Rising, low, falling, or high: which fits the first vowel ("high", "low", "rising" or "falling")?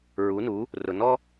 rising